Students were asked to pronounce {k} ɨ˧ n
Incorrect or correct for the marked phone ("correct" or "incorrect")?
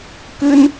correct